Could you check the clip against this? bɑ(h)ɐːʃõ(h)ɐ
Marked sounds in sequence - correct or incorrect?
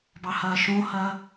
correct, correct

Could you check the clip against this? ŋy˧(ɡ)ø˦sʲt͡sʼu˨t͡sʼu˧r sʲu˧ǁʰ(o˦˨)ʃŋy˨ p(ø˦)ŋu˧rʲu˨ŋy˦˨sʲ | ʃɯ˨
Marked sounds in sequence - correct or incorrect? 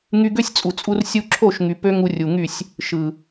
correct, correct, correct

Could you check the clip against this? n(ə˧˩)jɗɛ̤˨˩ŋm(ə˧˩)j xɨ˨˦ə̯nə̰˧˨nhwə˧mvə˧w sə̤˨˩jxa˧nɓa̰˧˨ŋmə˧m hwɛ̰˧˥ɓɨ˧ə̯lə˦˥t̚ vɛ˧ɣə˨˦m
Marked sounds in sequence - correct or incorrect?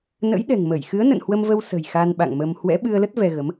incorrect, correct

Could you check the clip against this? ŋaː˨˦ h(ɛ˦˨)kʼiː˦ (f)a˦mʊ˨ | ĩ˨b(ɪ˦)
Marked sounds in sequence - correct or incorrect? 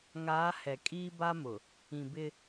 incorrect, incorrect, correct

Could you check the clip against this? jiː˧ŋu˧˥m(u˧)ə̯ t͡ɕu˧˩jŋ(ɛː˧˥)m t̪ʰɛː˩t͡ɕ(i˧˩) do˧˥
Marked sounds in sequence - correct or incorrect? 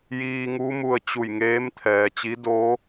correct, incorrect, incorrect

